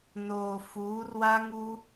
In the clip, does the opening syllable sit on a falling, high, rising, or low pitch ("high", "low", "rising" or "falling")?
low